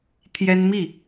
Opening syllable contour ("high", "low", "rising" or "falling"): high